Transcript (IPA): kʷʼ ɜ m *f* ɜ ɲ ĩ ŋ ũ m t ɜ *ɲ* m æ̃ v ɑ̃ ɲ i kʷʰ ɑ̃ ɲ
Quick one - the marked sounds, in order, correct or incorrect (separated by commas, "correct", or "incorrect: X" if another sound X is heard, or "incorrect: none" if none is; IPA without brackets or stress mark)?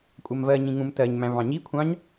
incorrect: v, correct